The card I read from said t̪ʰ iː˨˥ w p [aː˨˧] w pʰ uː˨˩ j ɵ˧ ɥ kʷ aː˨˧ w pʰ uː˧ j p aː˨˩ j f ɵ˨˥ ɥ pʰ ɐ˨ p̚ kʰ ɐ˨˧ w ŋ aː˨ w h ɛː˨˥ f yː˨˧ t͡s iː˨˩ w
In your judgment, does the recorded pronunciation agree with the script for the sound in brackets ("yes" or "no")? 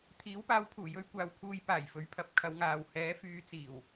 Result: yes